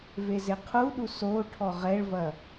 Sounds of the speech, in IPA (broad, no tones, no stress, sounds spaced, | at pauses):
v e z e qʰ u ɗ u s o ʈʰ ɔ ʁ ɛ ɭ v ɐ